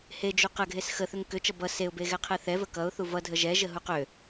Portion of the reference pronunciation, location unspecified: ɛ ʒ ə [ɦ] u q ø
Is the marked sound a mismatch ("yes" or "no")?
no